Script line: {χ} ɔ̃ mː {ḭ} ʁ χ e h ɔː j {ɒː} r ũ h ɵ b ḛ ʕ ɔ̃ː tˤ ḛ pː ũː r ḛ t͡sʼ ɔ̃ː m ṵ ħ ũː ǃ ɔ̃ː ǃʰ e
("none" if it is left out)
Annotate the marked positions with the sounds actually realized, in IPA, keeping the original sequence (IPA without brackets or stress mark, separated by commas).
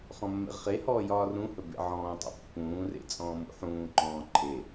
χ, ḛ, ɒː